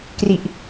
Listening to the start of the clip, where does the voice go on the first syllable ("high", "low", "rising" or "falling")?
low